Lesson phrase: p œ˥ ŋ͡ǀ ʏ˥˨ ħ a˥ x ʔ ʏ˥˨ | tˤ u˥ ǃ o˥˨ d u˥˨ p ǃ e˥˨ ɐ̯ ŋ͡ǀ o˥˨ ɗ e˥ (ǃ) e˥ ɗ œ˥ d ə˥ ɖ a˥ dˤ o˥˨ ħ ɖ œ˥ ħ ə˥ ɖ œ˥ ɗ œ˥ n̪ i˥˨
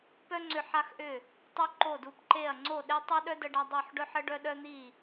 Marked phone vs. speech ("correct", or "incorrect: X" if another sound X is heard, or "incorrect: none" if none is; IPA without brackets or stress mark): incorrect: tˤ